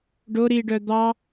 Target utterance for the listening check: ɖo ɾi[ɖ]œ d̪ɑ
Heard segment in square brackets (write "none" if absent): ɖ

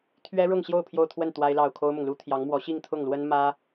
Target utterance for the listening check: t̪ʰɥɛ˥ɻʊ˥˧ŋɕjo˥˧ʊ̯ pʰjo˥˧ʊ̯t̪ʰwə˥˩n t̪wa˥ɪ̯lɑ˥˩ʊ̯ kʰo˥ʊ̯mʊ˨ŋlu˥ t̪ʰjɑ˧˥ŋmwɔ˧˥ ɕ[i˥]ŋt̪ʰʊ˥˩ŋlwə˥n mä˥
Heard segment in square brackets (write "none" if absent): i˥˧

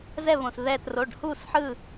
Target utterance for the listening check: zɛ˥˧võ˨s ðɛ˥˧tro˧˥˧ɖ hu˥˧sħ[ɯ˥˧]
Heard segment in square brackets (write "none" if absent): ɯ˥˧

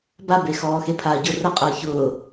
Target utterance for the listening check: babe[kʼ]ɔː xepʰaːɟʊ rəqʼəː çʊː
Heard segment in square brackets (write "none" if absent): x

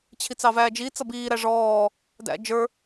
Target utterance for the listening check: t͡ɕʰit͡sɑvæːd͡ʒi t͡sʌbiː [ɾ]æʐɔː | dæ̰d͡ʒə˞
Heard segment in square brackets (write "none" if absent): ɾ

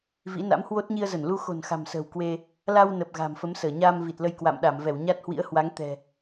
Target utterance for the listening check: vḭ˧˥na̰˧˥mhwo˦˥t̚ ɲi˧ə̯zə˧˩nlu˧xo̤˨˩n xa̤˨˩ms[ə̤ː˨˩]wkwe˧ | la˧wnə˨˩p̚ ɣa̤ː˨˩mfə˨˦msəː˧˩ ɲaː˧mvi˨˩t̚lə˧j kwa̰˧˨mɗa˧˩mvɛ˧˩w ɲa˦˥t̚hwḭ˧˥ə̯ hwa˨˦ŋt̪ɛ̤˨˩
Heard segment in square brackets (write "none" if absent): ə̤ː˨˩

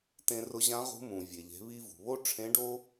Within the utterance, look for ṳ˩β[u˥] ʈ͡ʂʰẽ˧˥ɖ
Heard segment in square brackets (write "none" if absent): o˥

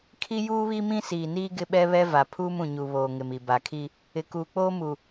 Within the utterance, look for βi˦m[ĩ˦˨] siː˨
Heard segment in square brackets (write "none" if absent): ĩ˦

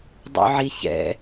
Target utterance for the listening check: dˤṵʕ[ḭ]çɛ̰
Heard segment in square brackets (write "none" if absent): i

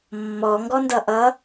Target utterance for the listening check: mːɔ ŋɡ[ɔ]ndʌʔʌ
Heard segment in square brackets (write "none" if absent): ɔ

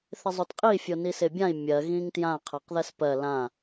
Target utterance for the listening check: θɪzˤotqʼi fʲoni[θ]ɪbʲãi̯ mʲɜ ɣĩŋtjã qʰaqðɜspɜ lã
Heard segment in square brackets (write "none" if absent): s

